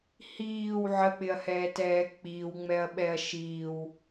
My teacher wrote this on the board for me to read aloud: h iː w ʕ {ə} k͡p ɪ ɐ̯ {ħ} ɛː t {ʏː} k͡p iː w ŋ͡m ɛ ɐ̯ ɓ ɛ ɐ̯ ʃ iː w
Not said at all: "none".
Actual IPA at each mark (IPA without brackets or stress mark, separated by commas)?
ə, h, ɛː